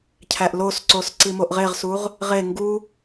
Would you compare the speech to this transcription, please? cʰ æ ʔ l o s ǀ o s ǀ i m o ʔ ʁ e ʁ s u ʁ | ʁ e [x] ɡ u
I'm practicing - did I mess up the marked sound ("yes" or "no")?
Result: yes